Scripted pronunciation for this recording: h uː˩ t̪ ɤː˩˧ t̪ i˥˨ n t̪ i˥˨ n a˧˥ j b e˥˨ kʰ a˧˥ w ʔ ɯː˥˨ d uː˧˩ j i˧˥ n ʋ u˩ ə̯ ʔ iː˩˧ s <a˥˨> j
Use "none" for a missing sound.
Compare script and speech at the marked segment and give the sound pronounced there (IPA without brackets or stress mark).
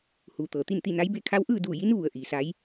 a˧˥